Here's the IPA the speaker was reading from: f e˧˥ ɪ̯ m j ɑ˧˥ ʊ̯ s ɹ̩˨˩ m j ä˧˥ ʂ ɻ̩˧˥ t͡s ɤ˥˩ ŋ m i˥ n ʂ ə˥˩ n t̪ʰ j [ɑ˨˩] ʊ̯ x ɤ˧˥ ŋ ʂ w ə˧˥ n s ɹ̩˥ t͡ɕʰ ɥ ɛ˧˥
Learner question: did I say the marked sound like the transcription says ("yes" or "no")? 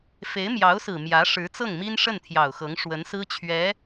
yes